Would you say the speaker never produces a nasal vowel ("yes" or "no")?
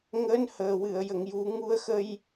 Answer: yes